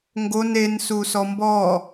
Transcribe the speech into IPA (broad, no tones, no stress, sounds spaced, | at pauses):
ŋ ɡ o n e n s u s ɔ m b ɔ